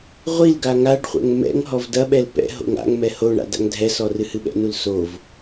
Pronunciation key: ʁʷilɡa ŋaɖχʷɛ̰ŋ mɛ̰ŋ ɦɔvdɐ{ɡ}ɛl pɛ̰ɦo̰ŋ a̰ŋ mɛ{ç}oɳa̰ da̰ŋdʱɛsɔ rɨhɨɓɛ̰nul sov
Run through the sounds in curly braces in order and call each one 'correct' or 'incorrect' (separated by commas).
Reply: incorrect, incorrect